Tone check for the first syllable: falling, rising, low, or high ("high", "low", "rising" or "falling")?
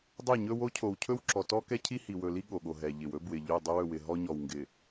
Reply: falling